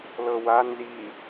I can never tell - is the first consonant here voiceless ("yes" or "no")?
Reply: no